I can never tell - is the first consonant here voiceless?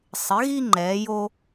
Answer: yes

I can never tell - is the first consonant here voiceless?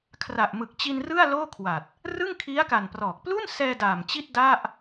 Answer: yes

